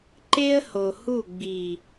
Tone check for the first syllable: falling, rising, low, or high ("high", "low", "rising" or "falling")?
high